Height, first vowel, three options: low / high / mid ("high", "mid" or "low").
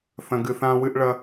low